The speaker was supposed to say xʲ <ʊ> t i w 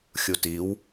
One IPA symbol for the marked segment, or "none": u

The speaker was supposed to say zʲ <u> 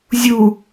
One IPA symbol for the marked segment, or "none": u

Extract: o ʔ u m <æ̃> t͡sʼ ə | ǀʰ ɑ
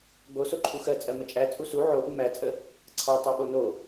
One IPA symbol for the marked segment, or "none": æ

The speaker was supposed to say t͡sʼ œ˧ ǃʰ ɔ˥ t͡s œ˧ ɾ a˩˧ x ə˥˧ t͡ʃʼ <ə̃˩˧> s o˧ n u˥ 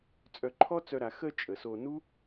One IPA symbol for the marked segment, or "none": ə˩˧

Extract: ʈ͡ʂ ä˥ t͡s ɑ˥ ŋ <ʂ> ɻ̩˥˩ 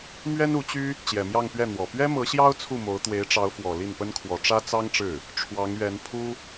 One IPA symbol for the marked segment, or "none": ʈ͡ʂ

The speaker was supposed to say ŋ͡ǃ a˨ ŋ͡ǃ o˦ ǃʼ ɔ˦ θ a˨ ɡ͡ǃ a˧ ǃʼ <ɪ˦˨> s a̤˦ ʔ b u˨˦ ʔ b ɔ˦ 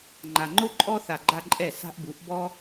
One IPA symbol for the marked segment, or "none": ɛ˦˨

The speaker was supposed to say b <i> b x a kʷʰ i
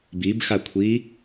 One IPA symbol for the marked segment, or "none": i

